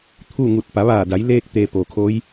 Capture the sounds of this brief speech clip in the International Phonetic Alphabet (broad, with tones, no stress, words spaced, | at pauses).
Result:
t̪ʰu˥˨ŋu˧˩t̚ pa˩˧ʋaː˧˩da˩˧j leː˧k̚t̪e˩ poː˩kʰoː˧˥j